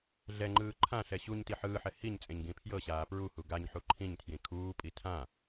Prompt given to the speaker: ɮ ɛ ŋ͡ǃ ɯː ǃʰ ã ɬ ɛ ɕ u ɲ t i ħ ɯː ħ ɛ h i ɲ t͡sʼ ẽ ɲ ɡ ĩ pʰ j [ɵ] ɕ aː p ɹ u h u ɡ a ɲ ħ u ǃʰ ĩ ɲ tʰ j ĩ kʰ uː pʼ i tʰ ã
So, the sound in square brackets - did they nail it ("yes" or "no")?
no